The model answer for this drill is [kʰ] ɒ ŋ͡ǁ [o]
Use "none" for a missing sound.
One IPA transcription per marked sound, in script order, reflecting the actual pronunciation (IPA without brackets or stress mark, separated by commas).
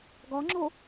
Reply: ɡ, o